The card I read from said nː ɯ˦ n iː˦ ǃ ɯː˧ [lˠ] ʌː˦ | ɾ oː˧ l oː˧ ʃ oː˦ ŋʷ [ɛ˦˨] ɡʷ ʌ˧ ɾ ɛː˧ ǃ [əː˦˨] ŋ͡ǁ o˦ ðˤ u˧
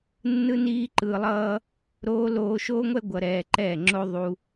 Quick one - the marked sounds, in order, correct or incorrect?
correct, incorrect, incorrect

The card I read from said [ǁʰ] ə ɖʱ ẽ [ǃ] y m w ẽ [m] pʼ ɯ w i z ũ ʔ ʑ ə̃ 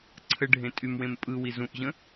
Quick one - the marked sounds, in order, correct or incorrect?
incorrect, incorrect, correct

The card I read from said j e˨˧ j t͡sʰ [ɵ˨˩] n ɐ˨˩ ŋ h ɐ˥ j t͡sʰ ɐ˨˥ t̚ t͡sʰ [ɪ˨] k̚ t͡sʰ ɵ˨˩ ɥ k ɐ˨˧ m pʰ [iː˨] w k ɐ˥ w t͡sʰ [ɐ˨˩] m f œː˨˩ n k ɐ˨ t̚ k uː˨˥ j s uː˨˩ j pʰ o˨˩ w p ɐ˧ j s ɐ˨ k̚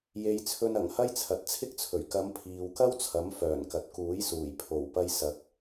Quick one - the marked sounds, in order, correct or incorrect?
incorrect, incorrect, correct, incorrect

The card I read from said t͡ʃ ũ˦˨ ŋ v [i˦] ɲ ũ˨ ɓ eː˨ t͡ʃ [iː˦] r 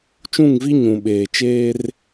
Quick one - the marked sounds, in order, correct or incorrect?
correct, incorrect

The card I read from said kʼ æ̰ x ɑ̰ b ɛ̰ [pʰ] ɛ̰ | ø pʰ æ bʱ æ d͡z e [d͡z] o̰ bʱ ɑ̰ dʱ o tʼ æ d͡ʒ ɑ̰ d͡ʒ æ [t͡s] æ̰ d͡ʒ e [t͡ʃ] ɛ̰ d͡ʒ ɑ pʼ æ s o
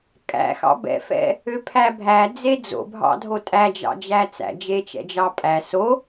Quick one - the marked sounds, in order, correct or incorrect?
incorrect, correct, correct, correct

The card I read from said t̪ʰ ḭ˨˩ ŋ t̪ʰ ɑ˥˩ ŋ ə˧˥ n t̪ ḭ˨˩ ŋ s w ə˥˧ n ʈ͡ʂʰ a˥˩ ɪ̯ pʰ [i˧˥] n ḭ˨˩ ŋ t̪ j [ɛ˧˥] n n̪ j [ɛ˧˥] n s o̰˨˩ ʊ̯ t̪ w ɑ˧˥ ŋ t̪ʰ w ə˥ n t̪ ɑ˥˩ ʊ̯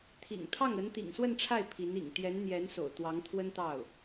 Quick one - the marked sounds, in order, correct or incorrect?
correct, correct, correct

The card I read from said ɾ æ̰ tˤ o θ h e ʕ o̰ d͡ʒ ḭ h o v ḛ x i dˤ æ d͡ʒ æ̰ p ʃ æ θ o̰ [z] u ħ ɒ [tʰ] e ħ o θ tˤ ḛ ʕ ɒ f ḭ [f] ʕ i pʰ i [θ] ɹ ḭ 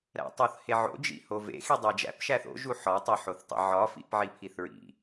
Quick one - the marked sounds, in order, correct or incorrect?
incorrect, incorrect, incorrect, correct

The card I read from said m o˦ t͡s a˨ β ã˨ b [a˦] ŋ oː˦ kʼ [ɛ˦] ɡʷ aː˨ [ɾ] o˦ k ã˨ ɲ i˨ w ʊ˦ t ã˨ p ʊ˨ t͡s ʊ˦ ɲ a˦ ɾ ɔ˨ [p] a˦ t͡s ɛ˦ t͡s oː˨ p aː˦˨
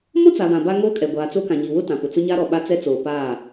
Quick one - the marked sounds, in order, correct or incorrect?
correct, incorrect, incorrect, incorrect

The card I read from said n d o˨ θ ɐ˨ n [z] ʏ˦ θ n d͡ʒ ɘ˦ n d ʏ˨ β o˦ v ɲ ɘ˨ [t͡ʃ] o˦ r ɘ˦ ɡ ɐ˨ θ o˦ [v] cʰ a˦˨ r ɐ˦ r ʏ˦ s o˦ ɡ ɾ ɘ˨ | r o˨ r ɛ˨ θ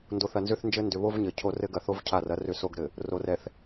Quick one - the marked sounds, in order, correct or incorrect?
correct, incorrect, correct

